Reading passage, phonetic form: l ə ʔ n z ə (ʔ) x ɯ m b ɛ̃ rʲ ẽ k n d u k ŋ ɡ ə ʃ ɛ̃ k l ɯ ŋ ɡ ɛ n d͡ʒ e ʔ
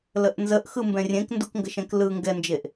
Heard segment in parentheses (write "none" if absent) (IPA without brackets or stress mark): ʔ